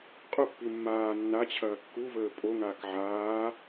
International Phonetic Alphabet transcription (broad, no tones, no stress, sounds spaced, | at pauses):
qʼ ʊ pː i mː aː nː a t͡ɕʰ ɐː kː u v əː pʼ o ŋ aː k ʕ aː